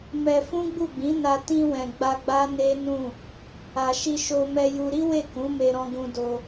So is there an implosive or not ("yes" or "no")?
no